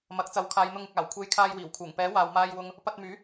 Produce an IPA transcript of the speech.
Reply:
mɐ˨˥k̚t͡sɐ˨˥wkʰaː˨˧jn̪ʊ˧ŋ ɪ˨k̚aː˨˩wkʷʰe˧j kʰaː˧jwiː˨˩wkʰuː˨˩ŋ pɛː˨˥waː˨w maː˧jwʊ˧ŋ | pɐ˧t̚myː˨˥

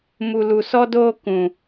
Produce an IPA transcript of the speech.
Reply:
mu˨lu˨ sɔ˦doː˦ kũ˨

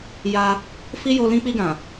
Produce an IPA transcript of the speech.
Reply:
ja˧ | fi˦jo˧ lĩ˧k͡pi˧ɡã˨

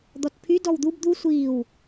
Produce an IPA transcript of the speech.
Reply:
d̪ɔtpʰy dɔwd̪ub d̪u sʷiːw

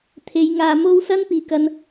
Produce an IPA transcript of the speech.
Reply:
t̪ʰe˨˧jŋaː˧mo˥w sɐ˥npiː˨kɐ˧n

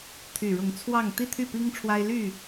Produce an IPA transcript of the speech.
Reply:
t̪ʰy˨˩ɻʊ˨˦ŋ t͡sʰwɑ˥˨ŋ t̪i˥˨t̪ʰy˥˨pi˦ŋʈ͡ʂʰwa˦ɪ̯ ly˥˨

